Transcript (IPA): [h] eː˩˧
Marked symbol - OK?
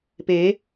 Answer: no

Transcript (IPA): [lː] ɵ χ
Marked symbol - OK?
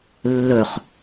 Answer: yes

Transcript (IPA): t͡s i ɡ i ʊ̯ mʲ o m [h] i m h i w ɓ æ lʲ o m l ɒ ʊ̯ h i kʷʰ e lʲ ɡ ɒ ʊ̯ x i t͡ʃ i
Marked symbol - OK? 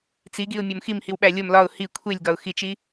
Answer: no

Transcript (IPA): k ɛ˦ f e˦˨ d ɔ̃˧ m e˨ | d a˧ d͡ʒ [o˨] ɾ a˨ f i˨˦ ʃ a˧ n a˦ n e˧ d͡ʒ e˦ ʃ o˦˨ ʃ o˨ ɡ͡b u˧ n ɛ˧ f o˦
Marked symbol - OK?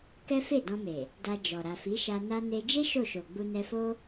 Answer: no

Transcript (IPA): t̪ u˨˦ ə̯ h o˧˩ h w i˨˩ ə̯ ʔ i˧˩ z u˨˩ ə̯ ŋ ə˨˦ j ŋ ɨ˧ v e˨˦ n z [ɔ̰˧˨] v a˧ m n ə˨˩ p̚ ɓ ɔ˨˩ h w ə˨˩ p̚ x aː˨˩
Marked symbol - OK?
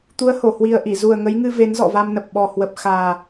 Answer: yes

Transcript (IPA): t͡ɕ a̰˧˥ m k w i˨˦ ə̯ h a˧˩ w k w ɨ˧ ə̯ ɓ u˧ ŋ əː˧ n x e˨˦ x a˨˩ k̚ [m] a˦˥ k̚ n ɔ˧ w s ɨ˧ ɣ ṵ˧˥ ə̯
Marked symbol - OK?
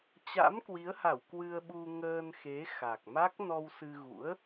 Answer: yes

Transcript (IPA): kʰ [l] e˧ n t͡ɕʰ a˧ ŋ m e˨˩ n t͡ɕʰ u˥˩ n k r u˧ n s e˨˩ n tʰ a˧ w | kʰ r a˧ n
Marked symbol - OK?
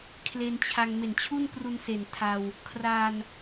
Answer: yes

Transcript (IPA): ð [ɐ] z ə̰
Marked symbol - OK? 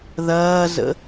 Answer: no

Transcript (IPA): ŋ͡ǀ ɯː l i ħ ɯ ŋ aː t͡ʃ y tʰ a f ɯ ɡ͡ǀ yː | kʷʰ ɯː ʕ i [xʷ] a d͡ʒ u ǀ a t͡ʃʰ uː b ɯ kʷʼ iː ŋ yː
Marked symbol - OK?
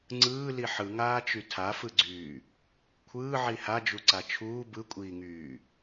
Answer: no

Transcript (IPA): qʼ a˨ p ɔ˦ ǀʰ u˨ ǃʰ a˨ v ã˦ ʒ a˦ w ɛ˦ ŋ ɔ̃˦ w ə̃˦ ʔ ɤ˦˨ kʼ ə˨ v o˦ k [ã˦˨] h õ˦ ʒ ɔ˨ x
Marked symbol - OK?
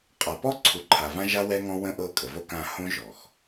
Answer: yes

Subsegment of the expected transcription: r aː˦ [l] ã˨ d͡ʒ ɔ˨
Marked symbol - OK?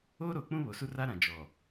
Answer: no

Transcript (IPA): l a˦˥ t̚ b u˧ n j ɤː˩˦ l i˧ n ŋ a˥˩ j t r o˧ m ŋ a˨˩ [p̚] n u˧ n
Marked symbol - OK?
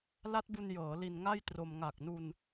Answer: no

